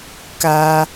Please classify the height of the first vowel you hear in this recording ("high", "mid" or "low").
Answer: low